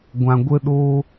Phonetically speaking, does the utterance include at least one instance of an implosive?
yes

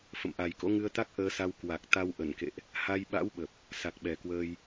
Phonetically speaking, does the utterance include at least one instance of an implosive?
yes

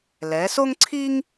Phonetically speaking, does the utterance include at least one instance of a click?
yes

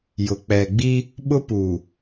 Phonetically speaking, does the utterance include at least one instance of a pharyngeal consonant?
no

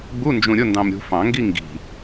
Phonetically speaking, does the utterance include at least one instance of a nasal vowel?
yes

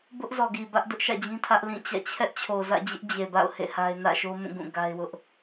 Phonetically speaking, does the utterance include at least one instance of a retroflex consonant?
no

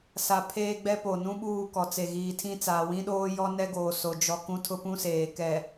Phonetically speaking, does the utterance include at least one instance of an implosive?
yes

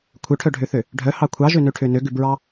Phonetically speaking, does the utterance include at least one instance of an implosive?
no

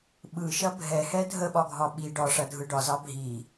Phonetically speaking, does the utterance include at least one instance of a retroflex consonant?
yes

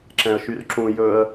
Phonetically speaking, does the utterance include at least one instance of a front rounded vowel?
yes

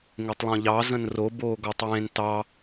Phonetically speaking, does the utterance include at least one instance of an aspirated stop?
no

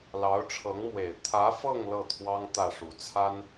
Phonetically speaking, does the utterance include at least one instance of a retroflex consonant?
yes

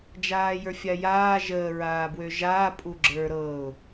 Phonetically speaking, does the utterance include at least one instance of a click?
yes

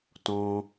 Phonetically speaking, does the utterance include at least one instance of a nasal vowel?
yes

